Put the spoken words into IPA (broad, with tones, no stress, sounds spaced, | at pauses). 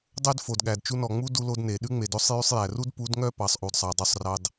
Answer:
dˤ ø˦ d f o˨ d ɠ æ˨ d t͡ʃ u˧ n ɔ˨ ŋ͡m u˦ d u˧ l o˧ d n e˨ ɗ ʉ˦ ŋ͡m e˨ d o˧ sˤ j y˧ sˤ j æ˨ r u˦ d p u˨˦ d ŋ œ˦˨ p ɑ˨ sˤ ʔ u˨ d sˤ ɑ˨ dˤ y˧ sˤ r ɑ˧ d